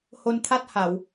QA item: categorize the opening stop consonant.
aspirated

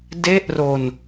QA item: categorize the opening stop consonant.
plain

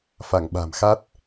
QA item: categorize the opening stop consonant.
implosive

